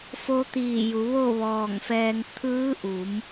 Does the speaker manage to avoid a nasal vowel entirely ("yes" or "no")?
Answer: yes